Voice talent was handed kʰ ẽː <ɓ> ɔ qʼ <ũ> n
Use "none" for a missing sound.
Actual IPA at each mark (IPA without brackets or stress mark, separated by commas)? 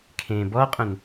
b, ũ